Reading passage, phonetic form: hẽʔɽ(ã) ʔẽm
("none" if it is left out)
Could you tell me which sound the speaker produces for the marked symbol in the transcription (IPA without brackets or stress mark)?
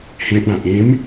ã